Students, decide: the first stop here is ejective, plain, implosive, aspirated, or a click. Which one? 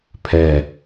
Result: aspirated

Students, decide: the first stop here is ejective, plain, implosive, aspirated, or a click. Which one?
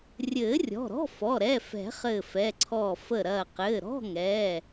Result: click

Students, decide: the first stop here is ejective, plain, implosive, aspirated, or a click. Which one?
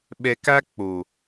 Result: implosive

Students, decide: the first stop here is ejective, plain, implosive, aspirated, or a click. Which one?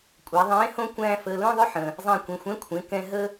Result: ejective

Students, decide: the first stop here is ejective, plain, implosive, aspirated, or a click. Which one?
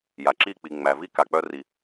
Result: click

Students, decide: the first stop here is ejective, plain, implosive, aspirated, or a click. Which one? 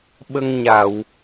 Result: implosive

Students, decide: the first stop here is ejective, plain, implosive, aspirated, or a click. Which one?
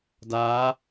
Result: plain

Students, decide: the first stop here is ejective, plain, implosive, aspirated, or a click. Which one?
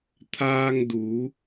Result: aspirated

